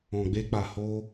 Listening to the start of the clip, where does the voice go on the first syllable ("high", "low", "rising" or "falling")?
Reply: low